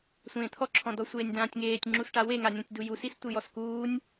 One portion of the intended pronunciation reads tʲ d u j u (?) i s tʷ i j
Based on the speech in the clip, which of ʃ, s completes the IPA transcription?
s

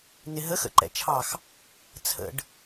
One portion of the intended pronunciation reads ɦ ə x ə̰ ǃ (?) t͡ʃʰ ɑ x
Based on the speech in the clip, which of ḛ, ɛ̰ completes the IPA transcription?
ɛ̰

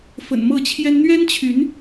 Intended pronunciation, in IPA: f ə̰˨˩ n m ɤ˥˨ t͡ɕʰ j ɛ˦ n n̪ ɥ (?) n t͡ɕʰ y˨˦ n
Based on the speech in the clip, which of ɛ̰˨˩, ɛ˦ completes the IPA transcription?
ɛ˦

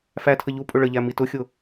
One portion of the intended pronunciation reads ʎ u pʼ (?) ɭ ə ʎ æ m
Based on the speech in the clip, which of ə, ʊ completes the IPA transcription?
ʊ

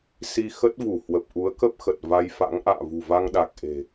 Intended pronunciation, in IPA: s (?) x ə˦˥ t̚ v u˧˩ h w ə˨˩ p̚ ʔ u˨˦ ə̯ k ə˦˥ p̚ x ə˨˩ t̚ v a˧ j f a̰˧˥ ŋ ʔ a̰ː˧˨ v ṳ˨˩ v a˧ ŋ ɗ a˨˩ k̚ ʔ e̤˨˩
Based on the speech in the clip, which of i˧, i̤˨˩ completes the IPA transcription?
i˧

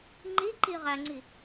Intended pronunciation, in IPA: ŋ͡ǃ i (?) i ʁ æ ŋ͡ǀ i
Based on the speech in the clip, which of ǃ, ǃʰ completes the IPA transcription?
ǃ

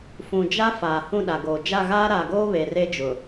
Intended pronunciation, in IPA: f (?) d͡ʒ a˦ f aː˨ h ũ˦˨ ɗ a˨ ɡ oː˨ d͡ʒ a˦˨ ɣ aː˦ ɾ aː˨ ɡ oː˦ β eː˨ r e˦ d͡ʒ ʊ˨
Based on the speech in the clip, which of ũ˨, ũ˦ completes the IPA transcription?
ũ˨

